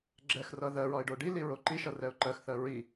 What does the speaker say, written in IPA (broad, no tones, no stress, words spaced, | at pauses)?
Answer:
ɡ͡ǁɛxrʌ ðɜɹɒɪ̯ ɖoɖili ɹoǃiʃʌ rɛʊ̯ǃɜxθɜ ɹi